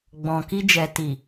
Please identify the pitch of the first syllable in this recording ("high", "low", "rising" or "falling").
low